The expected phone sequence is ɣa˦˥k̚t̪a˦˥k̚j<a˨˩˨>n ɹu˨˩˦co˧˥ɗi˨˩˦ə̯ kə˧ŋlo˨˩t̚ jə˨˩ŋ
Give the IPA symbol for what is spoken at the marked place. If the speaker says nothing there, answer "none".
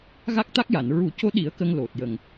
a˨˩˨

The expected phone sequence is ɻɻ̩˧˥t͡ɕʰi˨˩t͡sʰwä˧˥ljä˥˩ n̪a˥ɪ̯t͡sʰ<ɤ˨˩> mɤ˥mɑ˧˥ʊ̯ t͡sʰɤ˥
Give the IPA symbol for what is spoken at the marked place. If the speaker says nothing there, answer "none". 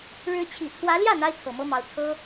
ɤ˨˩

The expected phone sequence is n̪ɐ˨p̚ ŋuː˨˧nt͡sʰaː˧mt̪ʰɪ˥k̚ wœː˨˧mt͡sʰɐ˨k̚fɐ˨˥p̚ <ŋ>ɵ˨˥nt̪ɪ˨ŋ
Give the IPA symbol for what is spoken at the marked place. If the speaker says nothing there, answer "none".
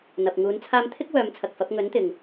ŋ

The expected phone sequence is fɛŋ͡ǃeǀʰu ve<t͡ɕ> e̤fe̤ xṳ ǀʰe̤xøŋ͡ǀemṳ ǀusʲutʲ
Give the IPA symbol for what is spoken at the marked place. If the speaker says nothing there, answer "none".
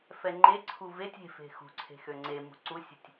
tʲ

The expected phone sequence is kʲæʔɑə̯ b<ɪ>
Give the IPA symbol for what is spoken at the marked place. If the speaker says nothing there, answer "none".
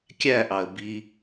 i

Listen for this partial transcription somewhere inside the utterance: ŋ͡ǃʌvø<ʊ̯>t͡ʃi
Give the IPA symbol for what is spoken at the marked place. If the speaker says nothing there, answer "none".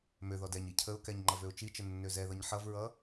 ʊ̯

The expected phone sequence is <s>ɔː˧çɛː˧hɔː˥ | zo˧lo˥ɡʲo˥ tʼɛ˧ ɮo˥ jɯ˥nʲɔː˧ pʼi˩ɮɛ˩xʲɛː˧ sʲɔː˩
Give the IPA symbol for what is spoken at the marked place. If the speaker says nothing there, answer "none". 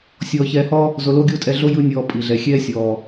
sʲ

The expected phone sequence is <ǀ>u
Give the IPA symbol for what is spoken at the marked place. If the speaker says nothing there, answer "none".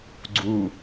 ɡ͡ǀ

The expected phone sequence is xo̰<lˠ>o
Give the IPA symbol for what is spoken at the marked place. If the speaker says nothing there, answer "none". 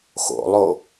lˠ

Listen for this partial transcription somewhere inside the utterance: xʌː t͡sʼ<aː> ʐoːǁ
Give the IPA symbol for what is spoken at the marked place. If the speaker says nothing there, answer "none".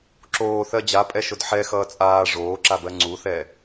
aː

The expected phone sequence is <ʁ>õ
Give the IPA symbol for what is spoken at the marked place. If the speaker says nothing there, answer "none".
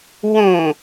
w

